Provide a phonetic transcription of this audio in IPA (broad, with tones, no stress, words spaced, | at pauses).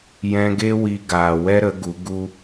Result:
jɛ̃˧ɡe˦ wi˧ɡaː˨ wɛ˦ɾə˨˦ ɡu˨˦ ɡu˦